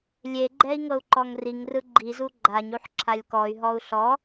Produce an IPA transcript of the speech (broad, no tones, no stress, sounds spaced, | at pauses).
lʲ e ɡ͡ǃ ɛ i̯ ŋ ɤ u̯ ǃ ɔ ŋ r i ŋ r ɯ ɡ͡ǃ i z u ɡ͡ǃ a ɲ u ħ ǁʰ a lʲ k ɔ y̯ ɦ ɔ u̯ ɬ ɔ